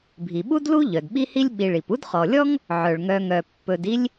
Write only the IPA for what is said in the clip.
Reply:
bʱ i˩ ɓ u˥ d l u˥ ʎ œ˩ d ɓ i˦ h i˦ lʲ ɓ i˨ ɭ i˩ p u˥ d χ ɔ˩ lʲ ɔ˥ ŋ | ʕ œ˩ ɭ ŋ œ˨ ŋ œ˩ pː ɵ˨ d i˦ lʲ

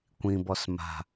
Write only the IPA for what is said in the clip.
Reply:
kʷ ĩ b ɔ s m a̤

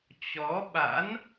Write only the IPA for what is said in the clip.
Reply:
t͡ɕ ɔ˨˦ ɓ a̰˧˥ n

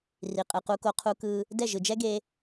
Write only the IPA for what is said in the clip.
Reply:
r i˨ qʼ ɯ˨ q u˧ k o˧ qʰ u˧ k ɯ˧ | d ɛ˦˨ ʒ ɯ˨ d͡ʒ ɛ˦ ɡ e˧

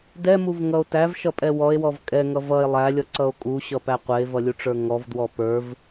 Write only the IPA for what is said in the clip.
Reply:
d ɛ m u v ŋ ʌ o̯ t æ v ʃ ʌ pʼ ɛ w ɔ e̯ w ɔ v kʼ ɛ ŋ ʌ v ʌ e̯ lˠ æ lʲ ʌ ǀ ʌ o̯ kʼ u ɕ ʌ p æ qʷ ɛ e̯ v ʌ lʲ u ʈ͡ʂ ə˞ ŋ ɔ v d w ɔ p ə˞ v

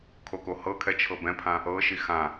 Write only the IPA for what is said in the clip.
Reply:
kʰ o k o h ɤ kʰ ɛ t͡ʃʰ ɤ b ɛ̃ pʰ ã | ɤ ʃ i x ã

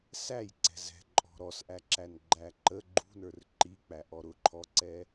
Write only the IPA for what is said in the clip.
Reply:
s æ j ǀ ɛ̤ z ɛ̤ ǃʼ ɔ̤ ɾ ɔ s ʔ æ ǁ æ n ɡ͡ǃ æ ǃ ə ɡ͡ǃ ṳ n ə˞ r ǃ i k͡p æ ʔ ɔ ɾ ʊ ǃʰ ɔ ǀ ɛ

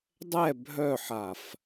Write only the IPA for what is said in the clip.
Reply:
dˤ ɛ bʱ œ ħ a f

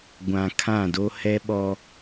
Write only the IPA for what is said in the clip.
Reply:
ɡʷ ã˨ kʰ ã˦˨ d o˦ h ɛ˦ ɓ ɔ˦

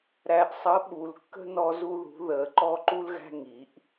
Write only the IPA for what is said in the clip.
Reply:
ɾ æ˨ ʔ sˤ ʌ˨˦ ɓ u˨ l kː ə̤˦ n ɔ˦ z u˦ ð ṳ˨˦ ð ə˨˩˦ ǃ ɔ˦ ǃ u˦ l ɣ æ̤˦ ŋ i˨˦ ʔ

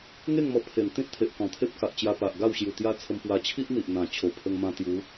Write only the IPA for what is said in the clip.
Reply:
ŋ e˥˧ ŋ m ɔ˧ pʰ e˨˩ n t̪ ĩ˦ t̚ t̪ʰ e˨ ʔ k ɔ̃˨˩ t̪ʰ e˦ p̚ k a˨ ʔ t͡ɕ j a˧ p a˨ ʔ ɡ a˥˧ w ɕ j u˨˩ t̪ j a˦ t͡sʰ ə˧ m p w a˧ t͡ɕʰ i˦ ʔ n̪ i˨ ʔ n̪ ã˨˩ t͡ɕʰ o˨˩ pʰ ə˧ ŋ m ã˧ t̪ j u˨˦

